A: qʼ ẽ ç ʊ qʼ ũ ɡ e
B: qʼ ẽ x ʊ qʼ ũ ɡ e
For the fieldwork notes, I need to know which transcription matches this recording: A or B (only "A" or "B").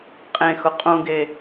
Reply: B